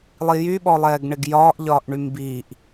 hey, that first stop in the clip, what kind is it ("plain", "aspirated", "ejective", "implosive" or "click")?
implosive